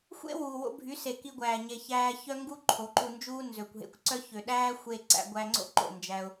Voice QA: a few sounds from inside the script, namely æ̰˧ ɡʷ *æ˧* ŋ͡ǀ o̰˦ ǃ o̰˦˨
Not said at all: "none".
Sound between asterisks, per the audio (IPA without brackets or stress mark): æ˧